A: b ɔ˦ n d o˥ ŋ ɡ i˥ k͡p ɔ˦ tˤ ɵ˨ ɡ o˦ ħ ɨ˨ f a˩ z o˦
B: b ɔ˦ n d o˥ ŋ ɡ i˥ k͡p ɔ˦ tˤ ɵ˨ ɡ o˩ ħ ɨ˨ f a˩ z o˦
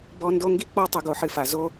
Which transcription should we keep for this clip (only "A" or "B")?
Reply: B